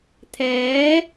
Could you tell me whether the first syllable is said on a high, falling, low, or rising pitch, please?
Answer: rising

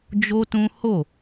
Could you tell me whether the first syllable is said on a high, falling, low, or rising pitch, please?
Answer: high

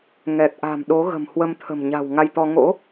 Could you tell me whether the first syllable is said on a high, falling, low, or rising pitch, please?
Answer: low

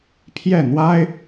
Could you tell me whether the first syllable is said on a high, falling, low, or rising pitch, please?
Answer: falling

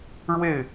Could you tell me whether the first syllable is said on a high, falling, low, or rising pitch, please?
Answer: falling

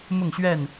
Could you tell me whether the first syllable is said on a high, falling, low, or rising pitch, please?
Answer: falling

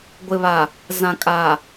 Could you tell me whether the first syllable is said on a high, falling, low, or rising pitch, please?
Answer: low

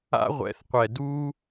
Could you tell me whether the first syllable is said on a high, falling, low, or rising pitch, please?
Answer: high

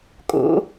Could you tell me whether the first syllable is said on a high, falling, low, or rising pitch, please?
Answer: rising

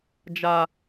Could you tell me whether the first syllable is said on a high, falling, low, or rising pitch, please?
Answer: high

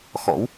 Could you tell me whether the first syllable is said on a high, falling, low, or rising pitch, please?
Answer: rising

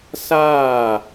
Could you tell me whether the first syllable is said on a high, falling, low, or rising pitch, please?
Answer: falling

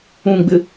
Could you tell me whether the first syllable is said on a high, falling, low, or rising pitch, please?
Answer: low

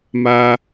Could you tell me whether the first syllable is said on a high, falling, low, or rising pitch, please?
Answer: high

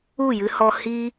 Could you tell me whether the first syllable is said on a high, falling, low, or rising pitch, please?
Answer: falling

